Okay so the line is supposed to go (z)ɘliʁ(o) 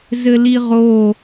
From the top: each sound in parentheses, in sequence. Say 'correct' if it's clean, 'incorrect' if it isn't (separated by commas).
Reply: correct, correct